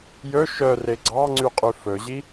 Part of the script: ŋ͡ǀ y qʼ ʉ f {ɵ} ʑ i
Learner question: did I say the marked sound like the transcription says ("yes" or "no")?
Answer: yes